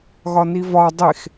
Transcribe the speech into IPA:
ɣ ɒ n i v ɒ dˤ e x

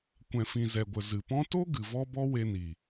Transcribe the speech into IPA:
kʷ ɛ̃˨ f ĩ˨ z ɛ˨ ɡʷ ə˨ z ɨ˨ p ɔ̃˦ t o˦ ɡ ɨ˨ v ɔ˦ b ɔ˦ w e˧ n i˨

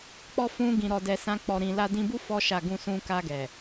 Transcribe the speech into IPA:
k͡p ɔ˦ f ũ˦ ɡ ĩ˧ ɾ ɔ˧ d ɛ˧ s ã˦ k͡p ɔ˧ ɾ ĩ˧ l a˧ d ĩ˧ b u˦ f ɔ˦ ʃ a˦˨ ɡ ũ˧ s ũ˧ k a˧ ɡ ɛ˨

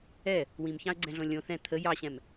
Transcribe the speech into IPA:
ɛ | w ĩ m ç ɑ̃ ə̯ ɡ͡ǀ ɛ̃ ɮ õ lʲ õ θ ɛ̃ t̪ʰ ə j ɑ ɕ ɛ̃ m

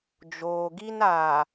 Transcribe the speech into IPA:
d͡ʒ oː˨ ɡ i˦ n a˨

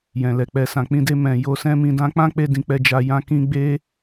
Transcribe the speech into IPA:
j ɛ̃˨ l ɛ˨ k͡p ɛ˨ s ã˨ k͡p ĩ˧ d e˧ m ɛ̃˨ j o˧ s ɛ̃˦ m ĩ˧ d ã˦ k͡p ã˦ k͡p e˧ d ĩ˨ k͡p ɛ˧ d͡ʒ a˧ j ã˧ k ĩ˧ ɡ͡b e˦

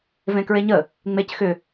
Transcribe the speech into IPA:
v ẽ k ɹ e ɲ ə | ŋ͡m e c x ʏ

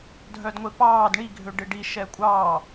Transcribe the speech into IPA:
dʱ œ d ŋʷ e p ɑː d ɳ i ɡʱ ø ɖ ɪ ɖ i ʃ ɛ kʷʼ ɑː

